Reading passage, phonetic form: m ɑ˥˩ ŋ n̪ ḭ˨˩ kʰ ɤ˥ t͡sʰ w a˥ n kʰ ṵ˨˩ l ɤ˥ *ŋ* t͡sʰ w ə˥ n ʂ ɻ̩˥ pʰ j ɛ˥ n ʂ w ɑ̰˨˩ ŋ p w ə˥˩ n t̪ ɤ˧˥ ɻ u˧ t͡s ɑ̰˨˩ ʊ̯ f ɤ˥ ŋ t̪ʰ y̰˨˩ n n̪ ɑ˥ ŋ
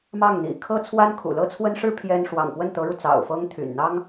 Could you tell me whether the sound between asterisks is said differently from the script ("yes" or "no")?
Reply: yes